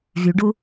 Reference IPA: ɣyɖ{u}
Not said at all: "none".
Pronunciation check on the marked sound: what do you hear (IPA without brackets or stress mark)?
u